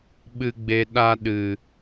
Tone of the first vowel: low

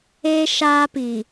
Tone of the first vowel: high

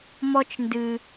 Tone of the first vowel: high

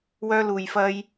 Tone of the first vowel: high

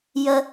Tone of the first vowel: high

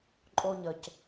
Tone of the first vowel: high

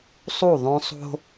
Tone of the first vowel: falling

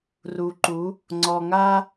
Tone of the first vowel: low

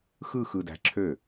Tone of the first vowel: falling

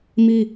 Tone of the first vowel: high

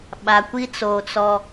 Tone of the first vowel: low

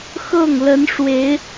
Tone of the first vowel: falling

